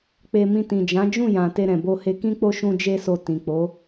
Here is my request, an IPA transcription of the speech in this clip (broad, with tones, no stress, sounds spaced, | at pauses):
k͡p e˧ m ĩ˧ t ĩ˨ d͡ʒ ã˨˦ d͡ʒ ũ˦˨ j ã˨ t e˧ ɾ ɛ̃˨ b o˧ h e˧ k ĩ˦ k͡p o˦˨ ʃ ũ˧ d͡ʒ e˧ s o˨ t ĩ˨ k͡p o˨˦